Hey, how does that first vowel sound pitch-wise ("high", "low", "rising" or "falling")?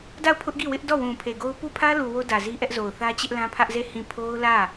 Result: falling